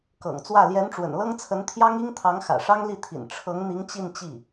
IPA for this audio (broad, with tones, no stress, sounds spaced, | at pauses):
k ɤ̰˨˩ ŋ t͡s w ä˥˩ l j ɛ˧˥ n ʈ͡ʂ w ə̰˨˩ n l ɤ˥ ŋ t͡sʰ ə˧˥ n t̪ʰ j ɑ˥ ŋ i˥ ŋ t̪ʰ ɑ˧˥ ŋ x ä̰˨˩ ʂ ɑ˥ ŋ l i˥˩ t̪ʰ ḭ˨˩ n ʈ͡ʂʰ ɤ˧˥ ŋ n̪ i˧˥ ŋ t͡ɕ i˥˧ n t͡ɕ i˥˩